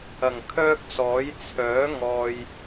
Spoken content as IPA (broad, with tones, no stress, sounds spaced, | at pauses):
ɐ˨˩ ŋ kʰ œː˥ k̚ s ɔː˨˥ j t͡sʰ œː˨˥ ŋ ɔː˨ j